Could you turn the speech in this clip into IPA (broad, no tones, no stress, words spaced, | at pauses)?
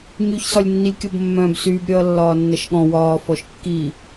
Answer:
ɲyçsɒlʲnːilʲkʲɔb mːœ̃ːbsyːbɾʲʌːlːɒː nːʌʃɠɔ̃ wɒː fɔʃkːi